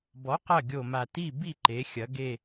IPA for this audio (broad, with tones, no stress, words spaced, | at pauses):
bɔ˨˥qɐ˦˨ ɡʲo˦˨ma˦˨ ti˦˨bi˦˨ǃe˩˧ xʲɐ˩˧ ɡe˦˨